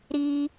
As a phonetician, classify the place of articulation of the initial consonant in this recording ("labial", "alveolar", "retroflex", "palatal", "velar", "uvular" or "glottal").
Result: alveolar